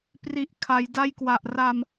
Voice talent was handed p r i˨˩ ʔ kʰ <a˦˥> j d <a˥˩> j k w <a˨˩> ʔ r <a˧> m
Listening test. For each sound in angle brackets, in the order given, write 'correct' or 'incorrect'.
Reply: incorrect: a˩˦, incorrect: a˦˥, correct, correct

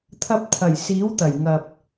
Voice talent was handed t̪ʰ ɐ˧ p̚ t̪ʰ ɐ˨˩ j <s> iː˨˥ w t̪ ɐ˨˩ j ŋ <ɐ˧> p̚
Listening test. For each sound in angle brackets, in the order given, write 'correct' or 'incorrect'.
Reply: correct, incorrect: ɐ˨

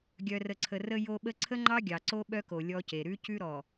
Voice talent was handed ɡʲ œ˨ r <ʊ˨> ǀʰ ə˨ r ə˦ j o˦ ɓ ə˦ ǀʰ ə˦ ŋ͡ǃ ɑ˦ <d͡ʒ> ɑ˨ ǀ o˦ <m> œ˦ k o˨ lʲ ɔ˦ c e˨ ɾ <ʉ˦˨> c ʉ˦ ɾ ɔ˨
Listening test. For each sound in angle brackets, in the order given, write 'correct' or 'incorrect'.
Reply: incorrect: ə˨, incorrect: ɡʲ, incorrect: ɓ, incorrect: ʉ˦

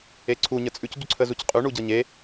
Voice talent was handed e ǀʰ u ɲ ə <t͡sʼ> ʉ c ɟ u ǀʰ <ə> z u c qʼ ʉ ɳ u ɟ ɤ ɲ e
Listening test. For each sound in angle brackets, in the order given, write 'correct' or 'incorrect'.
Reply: correct, correct

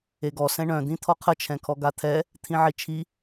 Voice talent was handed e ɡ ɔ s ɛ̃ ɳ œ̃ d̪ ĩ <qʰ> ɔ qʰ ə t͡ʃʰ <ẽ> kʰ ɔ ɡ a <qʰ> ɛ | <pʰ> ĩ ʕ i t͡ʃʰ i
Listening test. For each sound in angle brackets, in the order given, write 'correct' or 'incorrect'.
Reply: incorrect: t̪ʰ, incorrect: ɛ̃, incorrect: t̪ʰ, incorrect: t̪ʰ

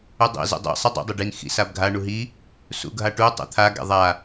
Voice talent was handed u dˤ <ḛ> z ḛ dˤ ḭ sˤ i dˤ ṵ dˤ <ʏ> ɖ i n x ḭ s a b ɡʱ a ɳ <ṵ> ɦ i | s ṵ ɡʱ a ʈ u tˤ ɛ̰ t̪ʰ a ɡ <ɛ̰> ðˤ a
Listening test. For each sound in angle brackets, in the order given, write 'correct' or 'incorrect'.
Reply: correct, correct, incorrect: u, correct

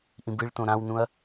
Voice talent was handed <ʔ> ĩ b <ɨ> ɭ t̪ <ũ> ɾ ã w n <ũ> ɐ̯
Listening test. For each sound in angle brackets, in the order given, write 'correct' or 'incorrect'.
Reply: correct, correct, incorrect: õ, correct

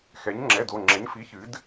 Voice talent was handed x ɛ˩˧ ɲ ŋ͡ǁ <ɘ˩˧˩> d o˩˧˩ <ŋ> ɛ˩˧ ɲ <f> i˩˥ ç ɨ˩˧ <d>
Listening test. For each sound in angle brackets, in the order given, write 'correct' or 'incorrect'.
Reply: incorrect: ɛ˩˧˩, incorrect: ŋ͡ǁ, correct, correct

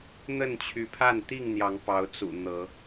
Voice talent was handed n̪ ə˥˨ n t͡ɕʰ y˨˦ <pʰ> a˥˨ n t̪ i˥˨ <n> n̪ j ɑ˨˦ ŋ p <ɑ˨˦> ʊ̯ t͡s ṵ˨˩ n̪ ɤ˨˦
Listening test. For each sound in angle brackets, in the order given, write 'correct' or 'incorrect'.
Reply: correct, incorrect: ŋ, correct

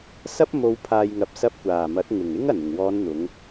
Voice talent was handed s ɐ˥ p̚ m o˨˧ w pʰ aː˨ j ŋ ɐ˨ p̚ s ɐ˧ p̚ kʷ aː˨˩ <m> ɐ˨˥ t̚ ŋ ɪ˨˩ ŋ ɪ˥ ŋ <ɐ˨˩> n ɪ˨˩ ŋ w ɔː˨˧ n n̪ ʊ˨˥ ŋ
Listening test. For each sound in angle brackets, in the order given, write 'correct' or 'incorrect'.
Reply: correct, correct

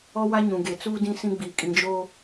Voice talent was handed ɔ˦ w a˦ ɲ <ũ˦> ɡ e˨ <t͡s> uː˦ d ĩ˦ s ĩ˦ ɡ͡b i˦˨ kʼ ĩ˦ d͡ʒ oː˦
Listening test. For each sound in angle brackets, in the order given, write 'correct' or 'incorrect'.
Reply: incorrect: ũ˨, correct

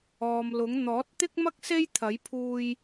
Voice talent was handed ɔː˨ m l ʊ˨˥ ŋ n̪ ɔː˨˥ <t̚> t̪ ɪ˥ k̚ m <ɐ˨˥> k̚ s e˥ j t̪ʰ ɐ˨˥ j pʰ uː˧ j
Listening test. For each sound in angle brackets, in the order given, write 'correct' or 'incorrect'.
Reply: correct, incorrect: ɐ˥

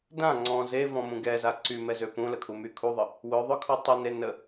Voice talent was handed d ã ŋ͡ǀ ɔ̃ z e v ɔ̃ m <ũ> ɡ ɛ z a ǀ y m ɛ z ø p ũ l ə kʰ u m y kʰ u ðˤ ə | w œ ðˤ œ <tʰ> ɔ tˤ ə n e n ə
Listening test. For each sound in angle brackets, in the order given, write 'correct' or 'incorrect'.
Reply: correct, incorrect: kʰ

